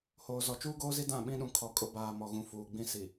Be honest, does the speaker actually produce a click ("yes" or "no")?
no